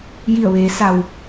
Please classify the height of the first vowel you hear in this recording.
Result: high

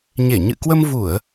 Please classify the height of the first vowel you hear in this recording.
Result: mid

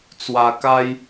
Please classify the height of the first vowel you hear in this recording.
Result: low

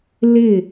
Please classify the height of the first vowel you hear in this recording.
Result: high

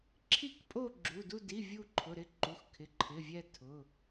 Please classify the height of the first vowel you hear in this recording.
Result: high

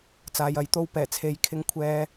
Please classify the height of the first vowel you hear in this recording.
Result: low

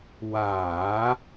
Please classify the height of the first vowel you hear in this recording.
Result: low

